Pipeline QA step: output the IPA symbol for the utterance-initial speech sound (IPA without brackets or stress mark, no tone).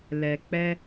l